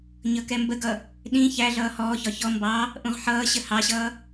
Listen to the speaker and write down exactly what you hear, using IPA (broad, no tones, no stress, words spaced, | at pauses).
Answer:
ɲʌkɛmbəɡʌ | ɗĩ çæɮʌː hɔːçɒ çɔ mbɑ | ʔũʁħʌːɕə hɑɕʌː